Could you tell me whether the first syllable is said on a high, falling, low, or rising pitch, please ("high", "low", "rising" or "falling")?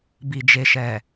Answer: low